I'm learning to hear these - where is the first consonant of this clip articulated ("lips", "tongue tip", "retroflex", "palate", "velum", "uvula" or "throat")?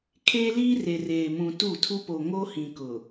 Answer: velum